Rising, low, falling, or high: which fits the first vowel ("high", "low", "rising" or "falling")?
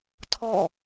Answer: falling